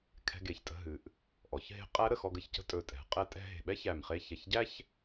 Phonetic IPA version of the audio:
kʰ ɛ̤˧ ɡ e˨˩ ç tʼ ə̤˧ ɦ ɨ˩˧ ʔ | ʔ ɔ˩˧ ç ɦ e̤˧˥ qʼ æ˧˥ ɾ ə˨˩ x ɔ˧ ɡ ə˧ ç c ə̤˧˥ tʼ ɵ˨˩ tʼ ɛ̤˩˧ qʼ ɛ˧˥ tʼ ɛ̤˧ ɦ e̤˨˩ ɓ ɛ˥ ç æ˨˩ m χ e˧ ç ɛ˨˩ ç ɟ æ˥ ç

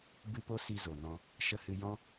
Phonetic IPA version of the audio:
b ɨ˦ p o˦ s i˧ z o˨ n ɔ̃˧ | ʃ ə˧ h ɨ˧ j ɔ̃˦

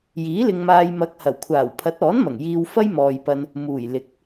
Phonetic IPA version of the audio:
j iː˨˥ l ɪ˧ ŋ m aː˧ j m ɐ˨˥ k̚ h ɐ˨˩ w kʷʰ aː˨˩ w pʰ ɐ˨˥ t̚ ɔː˨˥ n m ɐ˨˩ ŋ j iː˧ w f ɐ˥ j m ɔː˨ j p ɐ˧ n | m uː˨˩ j l ɪ˨˥ k̚

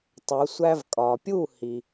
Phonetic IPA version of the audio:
tˤ o˩˥ sʷ æ˥ v kʼ ɒ˩ pʲ u˥˩ h i˩

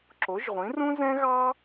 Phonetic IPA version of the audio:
ǁ o˩˥ ʒ ʁʷ ĩ˩˥ r ũ˥ z ɛ̃˥ ɣ ɑ˥

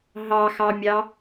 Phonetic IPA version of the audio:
ɦ ɑ x ɑ mʲ ɑ

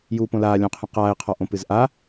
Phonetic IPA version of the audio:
j uː p õ l aː lʲ õ qʰ ɛ̃ q aː e̯ qʰ ɔ ʔ õ p ɨ z ʔ a

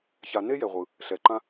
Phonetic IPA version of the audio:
ç a˨ n e˦ j ɛ˨ ʁʷ ɯ˨ | ɬ ɛ˨ ǃ ã˦

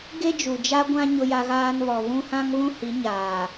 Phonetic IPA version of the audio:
ɡ e˦ d͡ʒ u˨ d͡ʒ a˦ ɡʷ ã˦ ɲ ʊ˦ j a˦ ɣ aː˦ n β ɔ˨ β ũ˦ h ã˦ ŋ β ũ˦ h i˨˦ ɲ aː˨

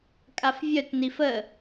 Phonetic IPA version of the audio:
kʼ a f vʲ œ t n i f ə

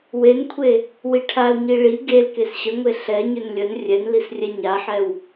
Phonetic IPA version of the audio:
w e n kʷʰ e | w i ʈʰ a l ɲ i ɭ i ɡ e l k e s ɕ ə ŋʷ e ɬ ɛ ɲ ʏ n lʲ ə n rʲ ɛ n l i s rʲ ɛ ɲ a ħ ɛ w

